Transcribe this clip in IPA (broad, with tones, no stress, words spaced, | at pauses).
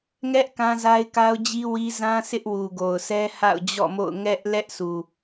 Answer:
ŋɛ˦ʔ kã˦za˦ɪ̯ka˦ʊ̯ d͡ʑi˦wi˦zã˦ sʰɪ˦ʔwu˨ɡo˨ʊ̯sɛ˦ ha̰˦˨ʊ̯d͡ʑɔ̰˦˨mo̰˦˨ʊ̯ ŋɛ˦ʔ lɛ˦ʔsʰu˨